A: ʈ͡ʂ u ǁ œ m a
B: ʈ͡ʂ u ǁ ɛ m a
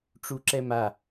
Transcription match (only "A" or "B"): B